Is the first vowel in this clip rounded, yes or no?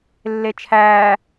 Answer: no